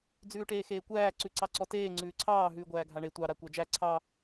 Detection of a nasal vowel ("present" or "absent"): absent